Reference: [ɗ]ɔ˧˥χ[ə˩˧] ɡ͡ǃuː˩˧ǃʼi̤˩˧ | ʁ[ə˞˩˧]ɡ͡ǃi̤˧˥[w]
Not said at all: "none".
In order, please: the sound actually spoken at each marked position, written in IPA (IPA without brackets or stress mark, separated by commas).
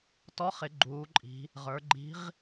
t, ɪ˩˧, ə˞˩˧, ʁ